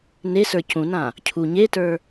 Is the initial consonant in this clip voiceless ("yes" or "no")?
no